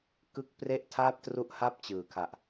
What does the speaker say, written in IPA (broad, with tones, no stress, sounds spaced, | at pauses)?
k ɯ˥˩ k̚ p r e˥˩ ʔ tʰ aː˥˩ p̚ t r u˥˩ ʔ h a˥˩ p̚ t͡ɕ ɯː˩˦ kʰ a˨˩ ʔ